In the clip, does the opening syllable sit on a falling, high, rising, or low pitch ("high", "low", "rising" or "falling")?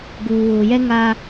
low